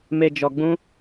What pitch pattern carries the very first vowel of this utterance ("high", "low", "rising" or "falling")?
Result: low